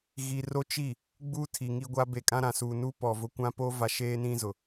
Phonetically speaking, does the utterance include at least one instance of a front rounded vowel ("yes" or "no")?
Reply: no